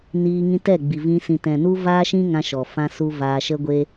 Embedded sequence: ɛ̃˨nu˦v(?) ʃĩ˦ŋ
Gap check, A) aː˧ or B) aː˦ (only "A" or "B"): B